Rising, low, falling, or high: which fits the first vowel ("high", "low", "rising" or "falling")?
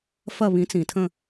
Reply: falling